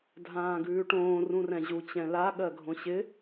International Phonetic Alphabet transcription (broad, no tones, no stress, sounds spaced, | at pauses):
dʱ ãː ɡ ʉː ʈ õː r ũ r ɛ̃ ʑ u t͡ɕ ɛ̃ l a ɠ ɜ ɡʱ õ ɕ ɪ